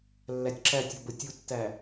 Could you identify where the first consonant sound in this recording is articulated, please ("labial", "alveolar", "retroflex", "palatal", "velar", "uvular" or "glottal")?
alveolar